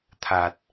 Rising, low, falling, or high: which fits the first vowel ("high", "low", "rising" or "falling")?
low